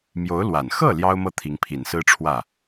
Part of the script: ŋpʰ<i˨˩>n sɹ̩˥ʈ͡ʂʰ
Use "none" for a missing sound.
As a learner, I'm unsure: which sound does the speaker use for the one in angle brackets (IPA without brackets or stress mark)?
i˨˩